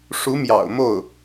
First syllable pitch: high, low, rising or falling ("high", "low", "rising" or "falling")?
rising